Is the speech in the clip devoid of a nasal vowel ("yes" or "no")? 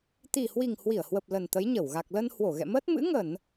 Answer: yes